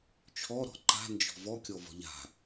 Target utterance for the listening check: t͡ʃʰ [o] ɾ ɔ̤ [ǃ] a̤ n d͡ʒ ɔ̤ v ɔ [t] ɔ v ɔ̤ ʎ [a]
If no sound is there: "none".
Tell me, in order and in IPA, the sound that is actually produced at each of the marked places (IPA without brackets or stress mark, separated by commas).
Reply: ɔ, ǃ, kʲ, a̤